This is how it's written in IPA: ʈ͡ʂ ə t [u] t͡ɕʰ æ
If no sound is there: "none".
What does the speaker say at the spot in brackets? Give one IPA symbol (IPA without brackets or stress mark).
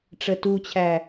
u